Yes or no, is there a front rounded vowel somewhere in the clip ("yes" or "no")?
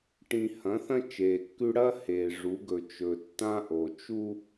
no